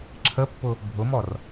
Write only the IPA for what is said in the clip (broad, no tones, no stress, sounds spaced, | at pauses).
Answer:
ǁʰ ə pː ʊ | bʱ ʊ m ɔ r